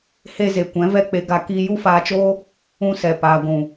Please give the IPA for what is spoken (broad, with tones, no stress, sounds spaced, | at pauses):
h e˧ z e˨ kʷ ɛ̃˨˦ v ɛ˦ k͡p e˧ ɡ a˧ k iː˧ j u˦ f aː˧ t͡ʃ oː˦ | ũ˧ s ɛ˨ p aː˨ ɡʷ ũ˨